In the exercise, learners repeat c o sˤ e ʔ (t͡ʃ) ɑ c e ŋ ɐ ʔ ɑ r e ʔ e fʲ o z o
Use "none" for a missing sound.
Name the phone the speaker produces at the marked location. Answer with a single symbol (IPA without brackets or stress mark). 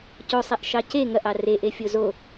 ʃ